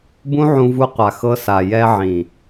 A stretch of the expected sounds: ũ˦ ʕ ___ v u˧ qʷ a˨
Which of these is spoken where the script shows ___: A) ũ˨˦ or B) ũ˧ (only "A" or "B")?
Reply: B